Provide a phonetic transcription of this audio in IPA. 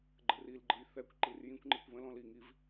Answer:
ɡ͡ǃ ə r i l ɡ͡ǃ ɯ j θ ɛ kʷ ǃ i r j ĩ kʷ ŋ͡ǃ i kʷ β ə̃ l ɔ̃ l i ŋ i v

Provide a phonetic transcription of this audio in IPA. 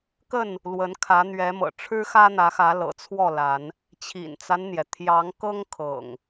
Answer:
k ə˥˨ n | l w ə˨˦ n kʰ ä˨˦ n̪ ɥ ɛ˨˦ m ɤ̰˨˩ ʈ͡ʂʰ ɻ̩˦ x ä˦ n̪ ä˨˦ x ä˨˦ l ɤ̰˨˩ t͡sʰ w ɔ˥˨ l a˨˦ n | t͡ɕʰ ḭ˨˩ n t͡s a˦ n n̪ j ɛ˩ t̪ʰ j ɑ˨˦ ŋ k ɤ˦ ŋ kʰ ɤ̰˨˩ ŋ

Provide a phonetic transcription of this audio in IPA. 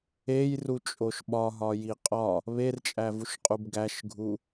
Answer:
e j r u t͡ʃʼ o ʃ ɓ ɒ ɦ ɒ j i qʼ ɒ | β e r t͡ʃʼ æ v u ʃ qʼ u b ɡ æ ʃ ɡʱ u

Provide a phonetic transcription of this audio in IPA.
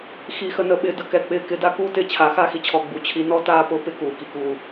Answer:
x i˨ x ə˨ n ə˨ ɓ ɪ˨ d ə˨ k ɛ˨ k͡p ɪː˨ k ɪ˨˦ d a˦ k uː˦ t ɪː˦ t͡ɕʰ a˨˦ x a˦ x i˨ t͡ɕʰ ɔ˨ ɡ͡b u˨ t͡ɕʰ i˨˦ n ɔ˦ t aː˦ p ʊː˦ p ɪ˦ k uː˨ k i˨ k uː˦

